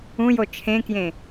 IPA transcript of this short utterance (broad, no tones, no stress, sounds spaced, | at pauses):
ũ j o t͡ʃʰ ẽ k j ẽ